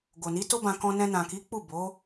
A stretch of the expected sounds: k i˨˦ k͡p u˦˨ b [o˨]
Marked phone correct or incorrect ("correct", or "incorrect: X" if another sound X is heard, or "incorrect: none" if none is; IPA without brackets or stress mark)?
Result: incorrect: o˨˦